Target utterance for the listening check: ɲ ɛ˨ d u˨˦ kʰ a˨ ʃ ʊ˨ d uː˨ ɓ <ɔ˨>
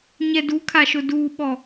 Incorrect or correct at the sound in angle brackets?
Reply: correct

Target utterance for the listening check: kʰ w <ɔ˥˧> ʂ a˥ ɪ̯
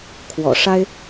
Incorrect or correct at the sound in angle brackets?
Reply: incorrect: ɔ̰˨˩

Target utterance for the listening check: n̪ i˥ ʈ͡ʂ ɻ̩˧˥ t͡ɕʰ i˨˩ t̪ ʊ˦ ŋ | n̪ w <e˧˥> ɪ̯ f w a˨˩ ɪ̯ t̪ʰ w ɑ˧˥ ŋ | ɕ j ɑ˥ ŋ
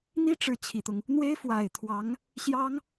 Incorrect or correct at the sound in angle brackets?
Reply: incorrect: e˥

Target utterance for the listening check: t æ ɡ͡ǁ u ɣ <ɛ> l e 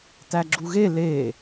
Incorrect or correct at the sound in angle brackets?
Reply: incorrect: e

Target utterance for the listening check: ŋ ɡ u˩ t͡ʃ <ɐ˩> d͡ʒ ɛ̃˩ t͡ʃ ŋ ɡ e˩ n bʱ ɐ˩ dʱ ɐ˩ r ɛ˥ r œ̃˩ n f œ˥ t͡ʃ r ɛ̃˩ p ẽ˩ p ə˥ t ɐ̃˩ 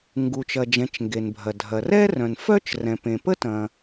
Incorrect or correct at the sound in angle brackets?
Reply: correct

